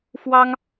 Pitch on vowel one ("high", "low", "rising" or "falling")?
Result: high